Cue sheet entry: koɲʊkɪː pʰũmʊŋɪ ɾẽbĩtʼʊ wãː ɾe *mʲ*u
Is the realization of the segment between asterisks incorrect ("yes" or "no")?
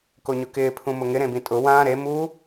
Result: yes